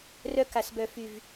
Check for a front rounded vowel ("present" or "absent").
present